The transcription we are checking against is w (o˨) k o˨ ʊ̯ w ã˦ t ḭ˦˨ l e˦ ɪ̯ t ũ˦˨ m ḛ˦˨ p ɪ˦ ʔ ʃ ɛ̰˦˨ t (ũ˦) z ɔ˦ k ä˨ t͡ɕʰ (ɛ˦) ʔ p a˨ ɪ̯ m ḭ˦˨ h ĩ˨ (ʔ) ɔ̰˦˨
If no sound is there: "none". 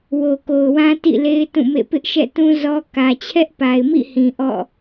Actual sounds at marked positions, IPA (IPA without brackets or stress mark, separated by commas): o˨, ũ˦, ɛ˦, ʔ